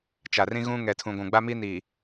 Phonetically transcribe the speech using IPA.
t͡ʃa˨rĩ˦ɣũ˦ ŋɛ˨tʰũ˨ɡʷũ˨ ɡ͡ba˦mi˦niː˨

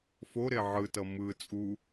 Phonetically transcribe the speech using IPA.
foɾe ʕɯtʌ mɯ t͡sʼu

